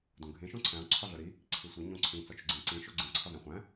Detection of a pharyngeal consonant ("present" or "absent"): absent